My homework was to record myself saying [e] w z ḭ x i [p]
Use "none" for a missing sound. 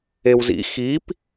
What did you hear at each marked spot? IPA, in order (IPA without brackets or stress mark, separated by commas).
e, p